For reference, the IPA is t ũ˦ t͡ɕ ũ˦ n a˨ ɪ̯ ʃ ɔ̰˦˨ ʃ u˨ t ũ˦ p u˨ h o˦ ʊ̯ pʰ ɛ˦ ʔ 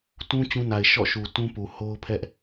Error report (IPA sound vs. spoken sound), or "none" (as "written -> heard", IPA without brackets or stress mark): none